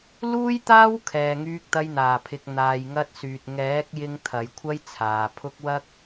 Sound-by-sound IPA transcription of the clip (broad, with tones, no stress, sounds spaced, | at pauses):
l uː˥ j t̪ aː˥ w kʰ ɛː˨ ŋ yː˧ k̚ t̪ ɐ˧ j n̪ aː˨˩ pʰ ɪ˨ k̚ n̪ aː˨ j ŋ ɐ˧ t̚ s yː˨ t̚ ŋ ɛː˨˥ k̚ j ɪ˧ ŋ t̪ʰ ɐ˨˧ j kʷʰ ɐ˥ j t͡sʰ aː˨ pʰ ʊ˥ k̚ w ɐ˥ k̚